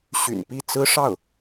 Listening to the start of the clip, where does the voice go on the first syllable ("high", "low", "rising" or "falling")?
low